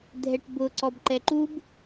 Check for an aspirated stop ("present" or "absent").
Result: absent